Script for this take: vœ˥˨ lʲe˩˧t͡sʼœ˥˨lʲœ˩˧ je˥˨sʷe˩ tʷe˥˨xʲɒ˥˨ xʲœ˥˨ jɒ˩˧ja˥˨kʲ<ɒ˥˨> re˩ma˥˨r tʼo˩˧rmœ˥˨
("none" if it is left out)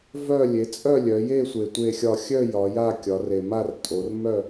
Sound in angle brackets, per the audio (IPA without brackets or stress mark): ɒ˩˧